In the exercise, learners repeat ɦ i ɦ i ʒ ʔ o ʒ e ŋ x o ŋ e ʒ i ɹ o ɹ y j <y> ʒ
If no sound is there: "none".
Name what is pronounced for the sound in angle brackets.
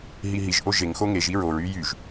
y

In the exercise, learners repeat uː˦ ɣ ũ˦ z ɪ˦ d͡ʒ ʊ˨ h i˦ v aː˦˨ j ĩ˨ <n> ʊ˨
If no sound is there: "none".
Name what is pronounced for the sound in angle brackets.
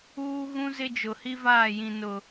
n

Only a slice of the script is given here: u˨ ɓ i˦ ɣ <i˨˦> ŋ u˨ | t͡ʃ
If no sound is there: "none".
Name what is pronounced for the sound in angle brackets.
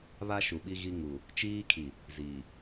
i˦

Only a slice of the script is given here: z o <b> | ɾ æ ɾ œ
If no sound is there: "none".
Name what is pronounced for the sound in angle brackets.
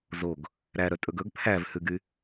ɡ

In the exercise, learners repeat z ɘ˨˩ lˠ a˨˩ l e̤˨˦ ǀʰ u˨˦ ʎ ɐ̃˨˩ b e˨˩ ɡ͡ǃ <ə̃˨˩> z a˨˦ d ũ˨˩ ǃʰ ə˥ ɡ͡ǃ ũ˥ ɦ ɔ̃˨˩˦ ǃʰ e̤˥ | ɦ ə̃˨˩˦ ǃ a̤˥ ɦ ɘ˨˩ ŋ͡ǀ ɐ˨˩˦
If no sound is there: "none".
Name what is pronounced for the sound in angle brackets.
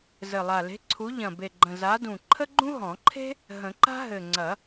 ə̃˨˩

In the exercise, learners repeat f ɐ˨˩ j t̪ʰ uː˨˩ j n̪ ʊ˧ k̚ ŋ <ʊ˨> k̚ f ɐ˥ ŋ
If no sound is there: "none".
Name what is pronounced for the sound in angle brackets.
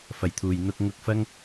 ʊ˧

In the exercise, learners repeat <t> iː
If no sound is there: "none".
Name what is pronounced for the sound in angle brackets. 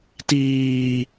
t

